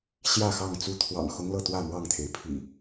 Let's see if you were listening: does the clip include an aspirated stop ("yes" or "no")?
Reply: yes